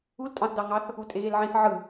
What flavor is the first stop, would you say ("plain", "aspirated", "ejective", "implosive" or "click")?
ejective